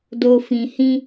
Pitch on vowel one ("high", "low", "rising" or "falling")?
low